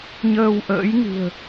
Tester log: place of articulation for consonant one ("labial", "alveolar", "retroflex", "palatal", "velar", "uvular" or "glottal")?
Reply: palatal